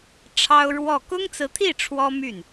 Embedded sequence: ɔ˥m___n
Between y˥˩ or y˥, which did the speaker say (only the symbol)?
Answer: y˥˩